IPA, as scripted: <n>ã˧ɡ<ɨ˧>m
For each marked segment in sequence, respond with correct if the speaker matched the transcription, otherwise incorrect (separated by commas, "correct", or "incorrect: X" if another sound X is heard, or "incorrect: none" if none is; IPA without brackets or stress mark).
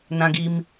correct, incorrect: i˧